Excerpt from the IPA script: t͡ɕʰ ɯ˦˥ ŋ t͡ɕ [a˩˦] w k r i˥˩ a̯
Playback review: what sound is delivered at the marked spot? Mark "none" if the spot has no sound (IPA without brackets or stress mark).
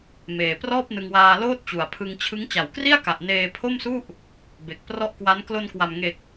a˩˦